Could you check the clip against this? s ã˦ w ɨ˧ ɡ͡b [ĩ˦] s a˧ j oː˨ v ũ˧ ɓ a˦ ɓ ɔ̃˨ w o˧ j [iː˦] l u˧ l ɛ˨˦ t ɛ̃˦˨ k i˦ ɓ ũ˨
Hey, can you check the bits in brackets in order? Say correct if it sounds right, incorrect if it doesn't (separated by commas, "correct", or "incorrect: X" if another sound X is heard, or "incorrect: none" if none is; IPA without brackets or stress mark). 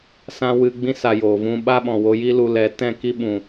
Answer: correct, incorrect: i˦